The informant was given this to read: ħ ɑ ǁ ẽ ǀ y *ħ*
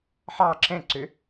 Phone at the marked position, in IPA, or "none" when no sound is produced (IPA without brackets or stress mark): none